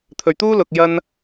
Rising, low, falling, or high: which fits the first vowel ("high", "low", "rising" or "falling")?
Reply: low